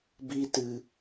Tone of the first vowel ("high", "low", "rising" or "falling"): high